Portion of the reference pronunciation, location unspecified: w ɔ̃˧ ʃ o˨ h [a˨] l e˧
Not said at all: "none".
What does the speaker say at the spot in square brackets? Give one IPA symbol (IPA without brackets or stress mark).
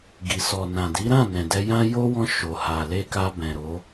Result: a˨